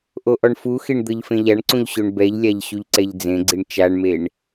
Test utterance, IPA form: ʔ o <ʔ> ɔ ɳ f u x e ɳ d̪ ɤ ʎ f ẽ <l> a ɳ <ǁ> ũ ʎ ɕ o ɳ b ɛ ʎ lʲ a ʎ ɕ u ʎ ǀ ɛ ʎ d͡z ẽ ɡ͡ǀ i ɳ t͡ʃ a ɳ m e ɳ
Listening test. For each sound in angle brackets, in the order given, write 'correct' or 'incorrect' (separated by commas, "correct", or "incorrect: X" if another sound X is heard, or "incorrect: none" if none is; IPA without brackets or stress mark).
correct, incorrect: ʎ, incorrect: ǀ